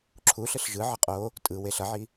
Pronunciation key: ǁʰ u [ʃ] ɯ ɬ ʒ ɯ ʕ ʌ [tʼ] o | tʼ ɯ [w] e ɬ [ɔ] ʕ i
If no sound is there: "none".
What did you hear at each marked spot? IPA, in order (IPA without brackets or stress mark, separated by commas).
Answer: ɬ, qʼ, w, ʌ